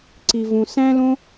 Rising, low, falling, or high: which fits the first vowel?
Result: low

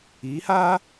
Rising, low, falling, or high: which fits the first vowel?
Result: rising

